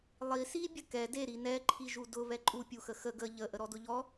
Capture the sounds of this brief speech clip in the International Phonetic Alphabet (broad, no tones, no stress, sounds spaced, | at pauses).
lˠ i s i bʲ ə k ɛ d e ɾ i n ɛ ǃʰ i ʒ u d ʊ β ɛ ǃʼ u pʲ u x ə x ə ɡ ə ʎ ə ʔ ə ɾ ɔ d ʊ ʎ ɔ